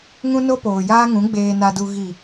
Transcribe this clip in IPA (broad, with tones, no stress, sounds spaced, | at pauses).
ŋ ũ˦ n o˦ p oː˨ j aː˦ ŋ ũ˨˦ ɡ͡b eː˨ n a˨ d u˨ ɣ i˨